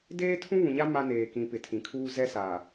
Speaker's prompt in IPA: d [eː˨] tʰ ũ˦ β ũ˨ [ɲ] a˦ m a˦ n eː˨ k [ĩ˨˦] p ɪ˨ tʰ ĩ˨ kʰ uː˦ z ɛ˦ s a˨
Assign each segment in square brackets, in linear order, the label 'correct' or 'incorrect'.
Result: incorrect, correct, correct

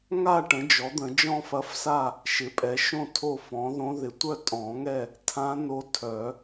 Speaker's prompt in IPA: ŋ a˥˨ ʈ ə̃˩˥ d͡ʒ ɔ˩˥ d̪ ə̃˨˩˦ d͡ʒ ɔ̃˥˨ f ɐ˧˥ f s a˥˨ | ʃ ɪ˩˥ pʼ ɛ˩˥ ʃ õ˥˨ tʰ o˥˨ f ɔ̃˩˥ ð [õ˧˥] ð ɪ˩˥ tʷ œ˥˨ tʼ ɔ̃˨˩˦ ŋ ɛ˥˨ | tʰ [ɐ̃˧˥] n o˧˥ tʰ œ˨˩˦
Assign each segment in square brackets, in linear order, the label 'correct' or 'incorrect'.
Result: correct, incorrect

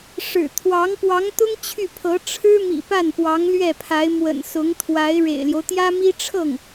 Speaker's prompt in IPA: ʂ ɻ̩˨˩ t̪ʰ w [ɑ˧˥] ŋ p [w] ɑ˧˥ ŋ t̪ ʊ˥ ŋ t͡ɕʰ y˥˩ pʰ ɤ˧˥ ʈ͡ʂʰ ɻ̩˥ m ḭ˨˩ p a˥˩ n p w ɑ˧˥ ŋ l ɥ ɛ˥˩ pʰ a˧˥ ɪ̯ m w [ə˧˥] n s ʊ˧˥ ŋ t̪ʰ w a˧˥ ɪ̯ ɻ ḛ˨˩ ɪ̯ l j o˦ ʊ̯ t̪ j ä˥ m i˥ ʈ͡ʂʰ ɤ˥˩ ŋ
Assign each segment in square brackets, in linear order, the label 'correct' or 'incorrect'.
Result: correct, correct, incorrect

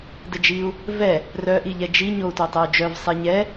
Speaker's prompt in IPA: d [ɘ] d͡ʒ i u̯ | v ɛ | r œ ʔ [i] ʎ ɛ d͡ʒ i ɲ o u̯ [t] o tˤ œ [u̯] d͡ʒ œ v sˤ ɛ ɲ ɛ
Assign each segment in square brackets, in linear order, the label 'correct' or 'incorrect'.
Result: correct, correct, correct, correct

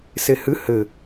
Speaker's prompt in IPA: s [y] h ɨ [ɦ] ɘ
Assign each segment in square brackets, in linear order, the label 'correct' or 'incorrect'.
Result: incorrect, incorrect

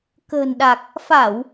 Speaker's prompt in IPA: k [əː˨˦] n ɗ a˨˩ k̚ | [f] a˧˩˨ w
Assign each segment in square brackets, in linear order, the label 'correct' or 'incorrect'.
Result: incorrect, correct

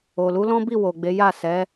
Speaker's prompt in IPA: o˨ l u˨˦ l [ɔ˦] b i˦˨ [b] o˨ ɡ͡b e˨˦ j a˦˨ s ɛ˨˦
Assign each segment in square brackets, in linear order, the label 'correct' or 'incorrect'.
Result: incorrect, incorrect

